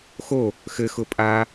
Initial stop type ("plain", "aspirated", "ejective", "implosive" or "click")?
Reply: ejective